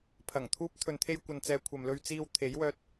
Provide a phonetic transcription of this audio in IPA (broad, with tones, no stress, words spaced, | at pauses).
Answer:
pʰɐ˨˩ŋt̪ʰuː˥p̚ t̪ʰɵ˨nt̪ʰe˧jkʷɐ˨nt͡sɛː˨ kʷʰɐ˨mlɵ˧ɥt͡siː˧w t̪ʰe˨˥jwœː˧t̚